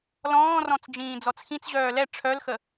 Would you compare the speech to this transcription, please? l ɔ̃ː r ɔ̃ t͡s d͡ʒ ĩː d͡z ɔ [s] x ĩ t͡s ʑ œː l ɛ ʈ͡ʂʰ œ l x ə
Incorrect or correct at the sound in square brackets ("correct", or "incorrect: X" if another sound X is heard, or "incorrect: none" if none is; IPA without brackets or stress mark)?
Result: incorrect: t͡s